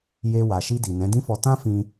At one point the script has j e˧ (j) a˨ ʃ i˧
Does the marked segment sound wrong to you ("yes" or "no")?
yes